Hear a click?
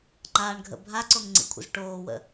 yes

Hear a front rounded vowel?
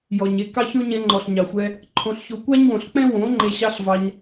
no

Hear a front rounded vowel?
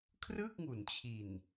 no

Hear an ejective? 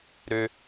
no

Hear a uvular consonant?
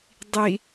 no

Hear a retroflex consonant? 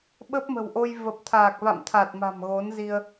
no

